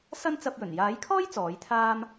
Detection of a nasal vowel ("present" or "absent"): absent